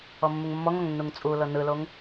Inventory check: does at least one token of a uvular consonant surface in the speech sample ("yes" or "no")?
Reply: no